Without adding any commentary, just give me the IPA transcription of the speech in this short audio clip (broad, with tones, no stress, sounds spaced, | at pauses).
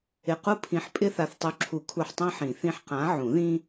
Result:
ɪ˧˩ q u˦ pʰ ĩ˨˥ ħ pʼ ɪ˦ θ a˧˩ θ tˤ u˨˥ ǁʰ u˨˩˦ kʰ u˧˩ ħ tˤ ã˦ ħ ĩ˨˩˦ θ ĩ˦ ħ q ã˨˥ ʕ ũ˨˩˦ ð ĩ˦